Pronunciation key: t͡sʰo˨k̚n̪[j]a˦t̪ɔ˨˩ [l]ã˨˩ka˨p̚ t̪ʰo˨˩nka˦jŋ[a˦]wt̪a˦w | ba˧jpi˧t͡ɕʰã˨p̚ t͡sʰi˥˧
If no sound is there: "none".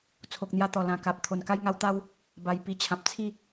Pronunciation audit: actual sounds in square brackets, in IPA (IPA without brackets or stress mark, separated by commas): j, l, a˦